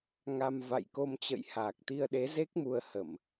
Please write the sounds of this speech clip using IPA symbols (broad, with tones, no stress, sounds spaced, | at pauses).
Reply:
ŋ a˧ m v a̰˧˨ j k o˧ m t͡ɕ ə̰˧˨ j h aː˨˩ k̚ t̪ i˧ ə̯ ɗ e˨˦ z e˦˥ k̚ m u˧ ə̯ h ə˧˩˨ m